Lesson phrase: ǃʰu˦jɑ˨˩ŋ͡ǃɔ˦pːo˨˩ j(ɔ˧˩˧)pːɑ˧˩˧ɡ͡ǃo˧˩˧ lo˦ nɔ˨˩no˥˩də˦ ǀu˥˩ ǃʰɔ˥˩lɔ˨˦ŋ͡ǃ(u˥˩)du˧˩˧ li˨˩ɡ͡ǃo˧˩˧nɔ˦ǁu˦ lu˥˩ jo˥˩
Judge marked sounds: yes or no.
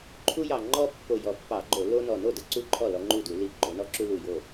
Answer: no, yes

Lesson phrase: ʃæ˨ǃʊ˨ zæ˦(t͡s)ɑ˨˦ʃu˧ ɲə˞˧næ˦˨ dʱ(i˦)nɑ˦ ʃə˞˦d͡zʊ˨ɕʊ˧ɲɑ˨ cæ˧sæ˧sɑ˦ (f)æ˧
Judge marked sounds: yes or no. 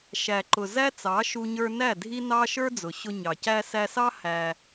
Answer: yes, yes, no

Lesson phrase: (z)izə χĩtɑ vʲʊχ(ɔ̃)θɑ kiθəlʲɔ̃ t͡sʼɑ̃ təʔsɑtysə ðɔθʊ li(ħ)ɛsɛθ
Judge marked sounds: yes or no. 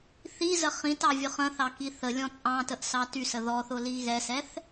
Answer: no, no, no

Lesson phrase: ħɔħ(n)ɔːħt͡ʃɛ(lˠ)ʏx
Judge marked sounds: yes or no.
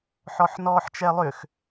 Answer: yes, yes

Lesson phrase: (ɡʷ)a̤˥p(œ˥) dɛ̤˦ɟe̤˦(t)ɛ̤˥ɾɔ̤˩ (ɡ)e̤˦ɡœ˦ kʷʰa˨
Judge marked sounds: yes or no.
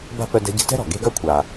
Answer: no, no, yes, yes

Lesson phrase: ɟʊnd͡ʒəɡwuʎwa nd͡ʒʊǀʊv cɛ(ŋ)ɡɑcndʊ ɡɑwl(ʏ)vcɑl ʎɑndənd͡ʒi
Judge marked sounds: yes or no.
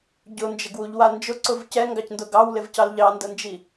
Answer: yes, no

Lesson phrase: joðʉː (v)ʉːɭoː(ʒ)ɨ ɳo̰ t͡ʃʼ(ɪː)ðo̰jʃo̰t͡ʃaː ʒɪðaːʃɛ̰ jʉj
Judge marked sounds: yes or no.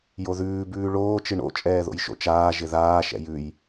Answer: no, no, no

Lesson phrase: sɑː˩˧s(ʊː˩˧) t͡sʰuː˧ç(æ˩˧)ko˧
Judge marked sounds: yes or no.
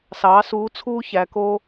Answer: no, yes

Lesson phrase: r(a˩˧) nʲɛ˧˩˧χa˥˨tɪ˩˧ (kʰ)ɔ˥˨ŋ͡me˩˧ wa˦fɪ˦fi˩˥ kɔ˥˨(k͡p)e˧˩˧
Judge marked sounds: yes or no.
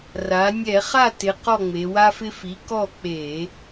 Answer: yes, no, yes

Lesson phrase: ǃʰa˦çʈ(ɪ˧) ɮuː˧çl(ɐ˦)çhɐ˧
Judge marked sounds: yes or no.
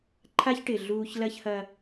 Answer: no, yes

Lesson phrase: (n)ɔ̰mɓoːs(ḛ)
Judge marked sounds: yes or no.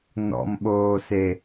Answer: yes, no

